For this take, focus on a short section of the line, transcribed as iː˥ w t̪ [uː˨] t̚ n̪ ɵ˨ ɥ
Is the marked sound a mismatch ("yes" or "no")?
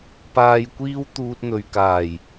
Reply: yes